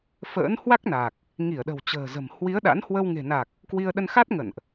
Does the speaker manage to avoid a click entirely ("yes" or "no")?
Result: yes